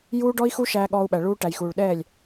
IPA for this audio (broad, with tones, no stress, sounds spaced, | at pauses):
j uː˦ ɖ ɔ˦ i̯ x u˦ ʃ æː˧ ɠ ɔː˧ u̯ ɓ æ˨ ɭ uː˧ ʈ æ˨ j x uː˨ ɭ ɗ ɛː˦˨ lʲ